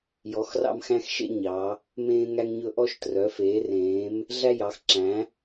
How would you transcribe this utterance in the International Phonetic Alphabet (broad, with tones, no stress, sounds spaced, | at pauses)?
j ɔ˩˧ x r ɑ̰˧ m x æ̃˧ x ʃ ḛ˧ ɲ ɑ˩˧ | m ẽː˧ ŋ æ˧ ŋ ɲ ɵ˧ ʔ ɔ˧ ʃ t r œ˩˧ f eː˩˧ r ẽː˩˧ m | ɮ æ˧ j ɑ˩˧ x ǁ æ̃˩˧